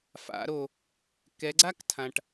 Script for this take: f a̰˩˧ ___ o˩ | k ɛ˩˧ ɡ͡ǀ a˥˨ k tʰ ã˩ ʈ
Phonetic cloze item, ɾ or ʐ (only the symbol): ɾ